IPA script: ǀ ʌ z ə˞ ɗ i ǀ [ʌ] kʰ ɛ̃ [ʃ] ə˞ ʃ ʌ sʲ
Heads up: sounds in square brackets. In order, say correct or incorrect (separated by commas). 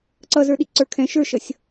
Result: incorrect, correct